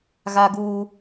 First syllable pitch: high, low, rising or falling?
high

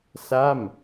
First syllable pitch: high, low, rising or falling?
falling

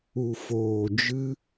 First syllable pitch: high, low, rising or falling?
low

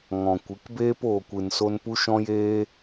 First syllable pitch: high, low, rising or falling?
low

